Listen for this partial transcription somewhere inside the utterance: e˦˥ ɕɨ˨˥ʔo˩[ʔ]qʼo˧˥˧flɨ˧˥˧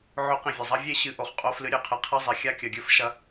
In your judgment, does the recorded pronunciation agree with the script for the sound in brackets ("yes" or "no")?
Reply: no